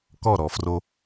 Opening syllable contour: falling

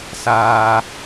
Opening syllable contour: low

